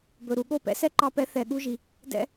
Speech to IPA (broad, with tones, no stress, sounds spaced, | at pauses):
b ɵ˩ ɾ u˧ ɠ o˥˩ p ɛ̰˩˥ s ɛ˥˩ ǃ ɑ˧ p ɛ˩˥ θ ɛ˩ ɠ u˧ ʒ i˩ | d ɛ̰˧